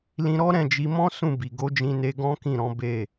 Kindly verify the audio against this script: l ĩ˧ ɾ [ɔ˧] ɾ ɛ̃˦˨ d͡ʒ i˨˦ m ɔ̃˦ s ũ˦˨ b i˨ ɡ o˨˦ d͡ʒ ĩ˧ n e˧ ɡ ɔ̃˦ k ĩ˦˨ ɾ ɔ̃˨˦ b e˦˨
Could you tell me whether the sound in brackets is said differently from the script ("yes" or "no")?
yes